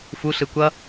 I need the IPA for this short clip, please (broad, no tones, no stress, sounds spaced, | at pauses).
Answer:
f u ɬ ɯ kʷ ʌ